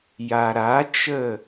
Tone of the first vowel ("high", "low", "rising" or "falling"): low